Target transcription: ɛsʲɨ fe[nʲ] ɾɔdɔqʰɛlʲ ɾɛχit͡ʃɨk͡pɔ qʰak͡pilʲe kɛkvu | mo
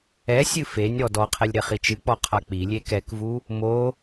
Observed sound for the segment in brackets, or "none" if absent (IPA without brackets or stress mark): nʲ